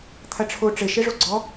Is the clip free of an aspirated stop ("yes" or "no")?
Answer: no